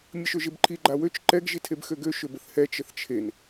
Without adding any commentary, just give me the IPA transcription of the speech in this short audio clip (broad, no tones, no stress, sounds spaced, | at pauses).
mʲ ə ʃ ø ʒ e b ǃʰ i ɡ͡ǃ a w ø t͡ʃ ǃ ɛ ɡ ʒ i tʰ e b x ø ɡ ø ʃ ø b ə θ h ɛ t͡ʃ ə θ t͡ʃʰ e n